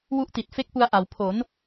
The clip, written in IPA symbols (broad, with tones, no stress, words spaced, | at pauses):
wu˦˥ʔti˨˩t̚fe˦˥k̚pu˧a̯ ʔa˩˦wpʰo˩˦n